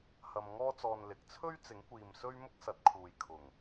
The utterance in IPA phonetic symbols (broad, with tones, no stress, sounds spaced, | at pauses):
h ɐ˧ m ŋ ɔː˥ t͡s ɔː˧ n l ɪ˨ k̚ t͡sʰ ɵ˥ ɥ t͡s ɪ˨˥ ŋ kʷ iː˨ m s ɵ˥ ɥ m ʊ˥ k̚ s ɐ˨˥ t̚ kʰ uː˨ j kʰ ʊ˨˩ ŋ